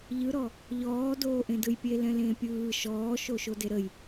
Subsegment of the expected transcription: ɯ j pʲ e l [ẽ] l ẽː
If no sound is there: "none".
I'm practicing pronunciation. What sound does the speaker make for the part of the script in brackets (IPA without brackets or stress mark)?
ɛ̃